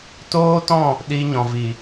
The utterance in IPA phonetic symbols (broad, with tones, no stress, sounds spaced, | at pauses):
t oː˦ t ɔ̃˦˨ | ɗ i˧ ɲ ɔ̃˨ v i˨